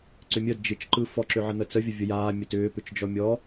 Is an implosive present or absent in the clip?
absent